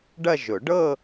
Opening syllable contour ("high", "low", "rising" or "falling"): falling